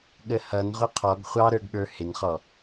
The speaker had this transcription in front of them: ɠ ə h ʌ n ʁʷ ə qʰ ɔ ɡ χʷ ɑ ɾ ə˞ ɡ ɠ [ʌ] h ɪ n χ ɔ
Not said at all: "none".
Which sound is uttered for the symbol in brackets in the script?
ə˞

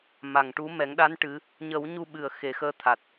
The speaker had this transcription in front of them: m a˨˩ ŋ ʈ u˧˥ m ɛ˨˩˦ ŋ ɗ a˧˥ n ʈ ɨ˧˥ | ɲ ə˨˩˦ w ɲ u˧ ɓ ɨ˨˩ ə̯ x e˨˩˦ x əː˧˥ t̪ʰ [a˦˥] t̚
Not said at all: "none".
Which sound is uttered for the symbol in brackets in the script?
a˨˩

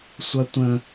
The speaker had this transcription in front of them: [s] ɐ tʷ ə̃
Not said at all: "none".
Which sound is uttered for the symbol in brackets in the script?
sʷ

